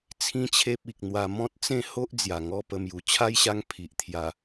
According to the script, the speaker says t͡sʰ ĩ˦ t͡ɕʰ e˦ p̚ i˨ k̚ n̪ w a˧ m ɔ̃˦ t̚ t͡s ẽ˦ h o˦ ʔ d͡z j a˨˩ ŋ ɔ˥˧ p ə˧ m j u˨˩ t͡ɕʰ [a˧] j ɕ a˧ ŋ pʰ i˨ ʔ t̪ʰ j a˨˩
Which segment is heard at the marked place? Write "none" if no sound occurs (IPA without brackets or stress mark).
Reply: a˦